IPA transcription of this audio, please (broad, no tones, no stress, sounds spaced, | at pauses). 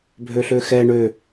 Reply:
bʱ ø ɬ ø x ɛ ɳ ø